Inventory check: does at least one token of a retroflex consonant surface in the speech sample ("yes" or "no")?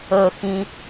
no